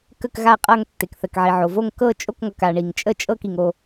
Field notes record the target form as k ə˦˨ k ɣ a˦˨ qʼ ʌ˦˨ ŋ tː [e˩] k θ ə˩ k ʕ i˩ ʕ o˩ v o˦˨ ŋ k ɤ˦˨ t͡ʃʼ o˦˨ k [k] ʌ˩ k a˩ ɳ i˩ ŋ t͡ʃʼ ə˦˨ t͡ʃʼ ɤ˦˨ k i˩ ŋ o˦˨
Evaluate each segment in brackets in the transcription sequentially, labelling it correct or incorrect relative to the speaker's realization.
correct, incorrect: ŋ

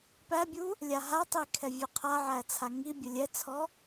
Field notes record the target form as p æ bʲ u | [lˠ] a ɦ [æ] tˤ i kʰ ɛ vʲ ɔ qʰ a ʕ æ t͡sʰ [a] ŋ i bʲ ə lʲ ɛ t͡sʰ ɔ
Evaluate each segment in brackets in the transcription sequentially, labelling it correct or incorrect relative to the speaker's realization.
incorrect: lʲ, incorrect: a, correct

